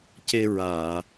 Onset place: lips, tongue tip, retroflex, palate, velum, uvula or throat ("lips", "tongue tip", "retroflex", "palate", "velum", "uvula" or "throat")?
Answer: palate